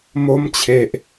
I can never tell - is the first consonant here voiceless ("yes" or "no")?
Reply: no